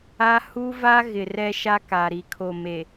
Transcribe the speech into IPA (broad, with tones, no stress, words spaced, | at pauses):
a˦ hu˦va˦ ɣɪ˨ rɛ˦ʃa˦ka˨ ɾi˨kʰo˨me˨